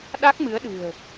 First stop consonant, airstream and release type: implosive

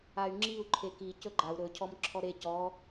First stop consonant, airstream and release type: click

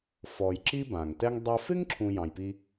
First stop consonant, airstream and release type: click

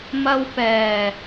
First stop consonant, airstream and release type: plain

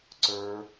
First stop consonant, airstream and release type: click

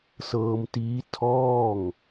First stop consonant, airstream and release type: plain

